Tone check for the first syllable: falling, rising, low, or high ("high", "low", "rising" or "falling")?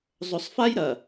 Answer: low